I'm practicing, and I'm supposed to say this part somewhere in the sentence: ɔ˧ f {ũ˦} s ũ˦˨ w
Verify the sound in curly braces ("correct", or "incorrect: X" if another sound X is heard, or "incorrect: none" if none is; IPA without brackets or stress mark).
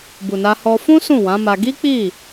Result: correct